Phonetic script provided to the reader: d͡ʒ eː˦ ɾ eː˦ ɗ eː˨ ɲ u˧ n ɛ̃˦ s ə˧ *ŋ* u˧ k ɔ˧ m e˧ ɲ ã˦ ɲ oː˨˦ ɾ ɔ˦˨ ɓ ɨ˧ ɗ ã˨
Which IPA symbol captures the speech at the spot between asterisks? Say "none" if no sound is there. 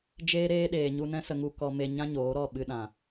ŋ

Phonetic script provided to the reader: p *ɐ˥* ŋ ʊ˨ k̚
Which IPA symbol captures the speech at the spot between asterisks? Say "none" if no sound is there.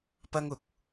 ɐ˥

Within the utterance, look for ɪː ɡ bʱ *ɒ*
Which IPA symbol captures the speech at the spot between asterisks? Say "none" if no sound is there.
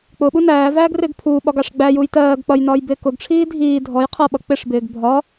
ɒ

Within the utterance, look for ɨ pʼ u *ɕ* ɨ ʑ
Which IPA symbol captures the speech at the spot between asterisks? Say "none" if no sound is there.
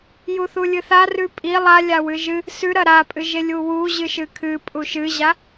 ʃ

